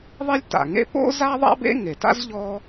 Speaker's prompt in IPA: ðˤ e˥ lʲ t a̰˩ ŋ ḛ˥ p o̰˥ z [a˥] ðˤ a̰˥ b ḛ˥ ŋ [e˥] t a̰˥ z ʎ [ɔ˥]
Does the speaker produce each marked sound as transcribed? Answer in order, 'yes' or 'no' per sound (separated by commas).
yes, no, yes